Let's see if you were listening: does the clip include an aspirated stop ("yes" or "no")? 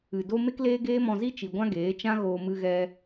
no